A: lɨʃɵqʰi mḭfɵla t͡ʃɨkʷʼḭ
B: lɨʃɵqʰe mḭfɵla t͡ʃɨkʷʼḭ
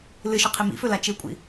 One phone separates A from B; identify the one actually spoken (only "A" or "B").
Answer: A